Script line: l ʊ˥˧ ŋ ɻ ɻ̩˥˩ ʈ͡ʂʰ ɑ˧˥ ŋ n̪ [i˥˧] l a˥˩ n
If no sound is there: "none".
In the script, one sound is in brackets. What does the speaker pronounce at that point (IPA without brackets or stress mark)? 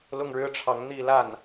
i˥˧